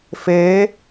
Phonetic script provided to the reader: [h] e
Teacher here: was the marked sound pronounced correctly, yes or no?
no